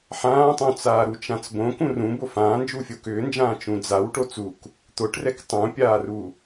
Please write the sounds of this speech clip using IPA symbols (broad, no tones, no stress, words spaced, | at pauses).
ħãːtˤũt͡saː ɾut͡ʃãt͡s bõ kũrũ bofãːnd͡ʒu fʲokʏːnd͡ʒãː t͡ʃũd͡zaw ʈot͡suk | t̪oʈrɛk tˤũpʲaːru